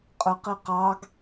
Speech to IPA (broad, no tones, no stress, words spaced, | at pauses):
qʼə˞qiqɑɡ